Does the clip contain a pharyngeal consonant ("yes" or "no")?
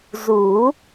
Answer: no